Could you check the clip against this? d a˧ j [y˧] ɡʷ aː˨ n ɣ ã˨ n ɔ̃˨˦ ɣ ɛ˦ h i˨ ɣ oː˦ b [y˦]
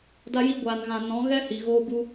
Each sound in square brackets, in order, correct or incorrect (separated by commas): incorrect, incorrect